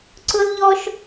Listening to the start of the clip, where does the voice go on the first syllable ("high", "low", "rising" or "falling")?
high